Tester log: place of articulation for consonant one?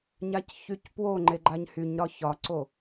palatal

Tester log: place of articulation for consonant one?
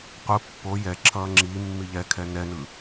uvular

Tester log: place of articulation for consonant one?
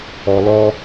alveolar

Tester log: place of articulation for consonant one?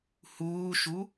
glottal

